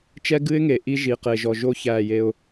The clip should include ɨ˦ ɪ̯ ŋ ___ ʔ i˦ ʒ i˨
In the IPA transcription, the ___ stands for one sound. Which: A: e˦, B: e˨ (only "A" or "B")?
B